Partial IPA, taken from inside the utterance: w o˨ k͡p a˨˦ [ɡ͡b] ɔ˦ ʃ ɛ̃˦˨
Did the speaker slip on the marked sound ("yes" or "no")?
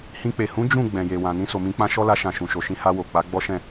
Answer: no